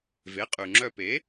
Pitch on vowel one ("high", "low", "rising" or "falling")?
rising